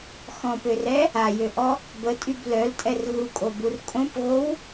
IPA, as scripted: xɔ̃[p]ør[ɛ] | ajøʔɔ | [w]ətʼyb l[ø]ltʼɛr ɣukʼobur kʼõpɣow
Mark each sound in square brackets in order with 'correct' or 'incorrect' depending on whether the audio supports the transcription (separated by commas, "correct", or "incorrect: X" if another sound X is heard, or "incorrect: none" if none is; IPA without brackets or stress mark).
correct, correct, incorrect: b, incorrect: œ